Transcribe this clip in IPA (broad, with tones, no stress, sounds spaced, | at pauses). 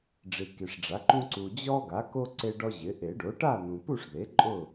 ɖ͡ʐ i˨ k i˨ ʂ ɖ͡ʐ a˩˥ ǃ ũ˦ ǀ u˨ d͡ʑ ɔ˦ ɡ a˩˥ k o˦ ǀ e˦ ɖ ɔ˦ ʑ ɪ˩˥ ʔ e˨˩˦ ɖ o˩˥ ʈ a˥˨ n̪ ũ˨ p u˥˨ ʂ ð e˩˥ ǃʼ ʊ˥˨